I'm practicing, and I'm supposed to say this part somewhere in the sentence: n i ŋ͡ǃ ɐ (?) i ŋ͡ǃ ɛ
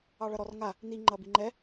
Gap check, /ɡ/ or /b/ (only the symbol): b